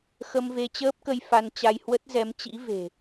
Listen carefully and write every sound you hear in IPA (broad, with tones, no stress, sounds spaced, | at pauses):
x ə˧ m v e˧ t͡ɕ əː˦˥ p̚ k ə˧ j f a˧ n t͡ɕ a˧ j h w ə˦˥ t̚ z ɛ˨˦ m t͡ɕ ḭ˧˥ v e̤˨˩